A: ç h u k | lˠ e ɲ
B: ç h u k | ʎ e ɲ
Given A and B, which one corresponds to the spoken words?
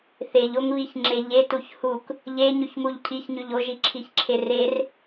B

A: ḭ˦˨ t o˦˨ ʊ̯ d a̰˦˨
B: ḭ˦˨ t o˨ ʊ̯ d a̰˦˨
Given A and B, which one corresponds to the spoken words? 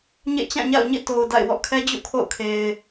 B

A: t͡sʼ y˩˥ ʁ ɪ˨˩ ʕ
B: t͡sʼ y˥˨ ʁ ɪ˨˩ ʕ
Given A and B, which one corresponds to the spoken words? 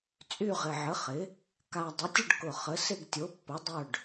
B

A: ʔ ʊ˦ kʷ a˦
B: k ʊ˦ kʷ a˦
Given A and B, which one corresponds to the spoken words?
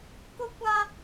B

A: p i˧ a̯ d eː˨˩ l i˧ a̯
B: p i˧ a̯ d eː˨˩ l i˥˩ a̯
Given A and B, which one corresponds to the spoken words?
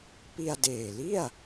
B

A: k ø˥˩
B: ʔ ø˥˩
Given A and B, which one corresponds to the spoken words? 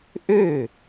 B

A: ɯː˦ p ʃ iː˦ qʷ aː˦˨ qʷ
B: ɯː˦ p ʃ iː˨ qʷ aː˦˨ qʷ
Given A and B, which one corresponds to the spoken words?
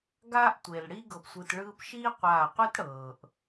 A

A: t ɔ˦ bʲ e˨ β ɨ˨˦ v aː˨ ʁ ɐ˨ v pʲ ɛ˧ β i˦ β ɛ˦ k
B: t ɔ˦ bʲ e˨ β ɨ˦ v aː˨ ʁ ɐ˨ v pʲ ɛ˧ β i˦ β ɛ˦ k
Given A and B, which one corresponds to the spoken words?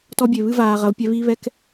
B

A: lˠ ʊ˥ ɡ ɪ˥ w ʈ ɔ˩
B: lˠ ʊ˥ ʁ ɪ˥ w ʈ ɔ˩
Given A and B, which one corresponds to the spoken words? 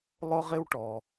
B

